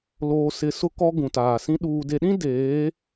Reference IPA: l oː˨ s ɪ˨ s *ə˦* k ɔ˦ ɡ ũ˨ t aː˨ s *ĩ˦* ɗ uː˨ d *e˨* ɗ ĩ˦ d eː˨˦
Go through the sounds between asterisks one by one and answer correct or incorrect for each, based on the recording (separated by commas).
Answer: incorrect, correct, correct